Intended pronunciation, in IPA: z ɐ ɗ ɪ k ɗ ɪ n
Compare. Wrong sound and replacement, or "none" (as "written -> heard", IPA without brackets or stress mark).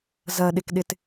n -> t